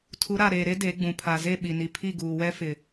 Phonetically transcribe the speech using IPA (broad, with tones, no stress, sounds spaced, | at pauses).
tʰ u˨˦ ɾ a˨ ɾ eː˨ ɾ e˦ d e˨˦ ɡ͡b ũ˨ pʰ a˨ z e˦˨ ɓ i˨ n i˨ pʰ i˦˨ ɡ uː˨ w ɛ˦ f ɪ˨